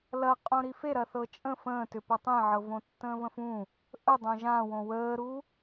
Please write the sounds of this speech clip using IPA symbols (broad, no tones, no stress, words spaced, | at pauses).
lɐqʼõ ɾifeɾɐ θɤt͡ʃʼə̃ fə̃ːtʏpɐ tˤẽʕɤvõtːə̃ː və̃fũ | ʔə dˤõʒãwõ wəːɾu